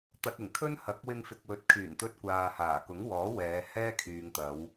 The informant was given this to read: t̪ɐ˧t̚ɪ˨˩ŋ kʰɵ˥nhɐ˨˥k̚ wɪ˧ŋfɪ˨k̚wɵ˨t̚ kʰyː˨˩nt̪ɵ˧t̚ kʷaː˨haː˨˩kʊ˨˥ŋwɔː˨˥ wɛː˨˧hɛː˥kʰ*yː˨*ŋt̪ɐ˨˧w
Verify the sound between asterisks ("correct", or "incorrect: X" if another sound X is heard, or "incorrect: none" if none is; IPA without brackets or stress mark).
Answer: correct